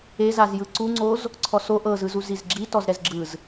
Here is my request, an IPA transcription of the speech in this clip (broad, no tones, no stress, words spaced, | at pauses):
ezazjɯ ǀuŋ͡ǀoz | ǀʰɔso ʔɤzɯzuziz ɡ͡ǁi tɔzɾɛzɡ͡ǁɯz